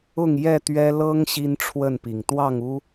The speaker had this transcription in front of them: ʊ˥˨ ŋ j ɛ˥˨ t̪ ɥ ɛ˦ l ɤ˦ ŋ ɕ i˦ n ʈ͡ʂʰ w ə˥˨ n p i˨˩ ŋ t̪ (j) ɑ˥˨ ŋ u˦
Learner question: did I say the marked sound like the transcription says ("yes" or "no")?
no